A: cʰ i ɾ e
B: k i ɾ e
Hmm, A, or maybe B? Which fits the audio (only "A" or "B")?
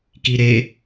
B